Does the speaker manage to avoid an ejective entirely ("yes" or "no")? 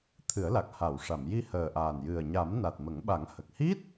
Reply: yes